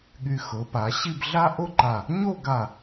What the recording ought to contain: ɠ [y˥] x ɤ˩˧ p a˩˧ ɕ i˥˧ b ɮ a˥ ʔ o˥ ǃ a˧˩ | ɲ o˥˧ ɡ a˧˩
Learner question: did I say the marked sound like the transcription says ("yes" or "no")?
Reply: no